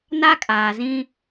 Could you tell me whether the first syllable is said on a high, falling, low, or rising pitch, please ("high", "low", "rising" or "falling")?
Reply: high